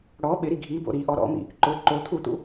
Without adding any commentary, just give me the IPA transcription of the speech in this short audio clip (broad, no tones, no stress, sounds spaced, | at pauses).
ɽ ɔ ɓ ɪ ɾ i ɡʱ i b o̰ ɾ i ʔ ɔ ɾ ɔ̰ m ḭ | ǃ ʊ ǃ o t̪ʰ u t̪ ṵ